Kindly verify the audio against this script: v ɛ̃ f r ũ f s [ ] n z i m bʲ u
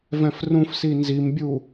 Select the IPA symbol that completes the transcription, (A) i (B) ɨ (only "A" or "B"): A